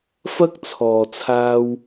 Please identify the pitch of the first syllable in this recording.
high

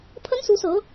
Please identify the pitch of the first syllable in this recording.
high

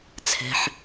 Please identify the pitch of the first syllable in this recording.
low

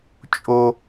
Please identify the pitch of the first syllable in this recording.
high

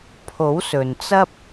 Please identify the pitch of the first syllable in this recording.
rising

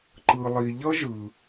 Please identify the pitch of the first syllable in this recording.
low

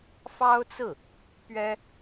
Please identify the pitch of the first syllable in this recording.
high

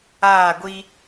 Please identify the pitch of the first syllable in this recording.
falling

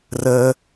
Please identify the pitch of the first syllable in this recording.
high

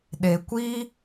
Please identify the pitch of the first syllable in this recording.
low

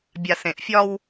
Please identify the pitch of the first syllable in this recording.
low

